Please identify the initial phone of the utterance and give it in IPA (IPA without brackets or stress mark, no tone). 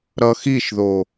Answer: ɾ